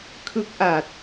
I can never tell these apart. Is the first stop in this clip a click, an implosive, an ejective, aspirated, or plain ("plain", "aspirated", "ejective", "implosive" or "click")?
aspirated